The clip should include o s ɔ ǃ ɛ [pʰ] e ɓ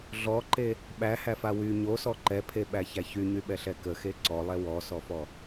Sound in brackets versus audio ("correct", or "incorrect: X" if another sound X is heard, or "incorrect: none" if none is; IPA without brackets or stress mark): correct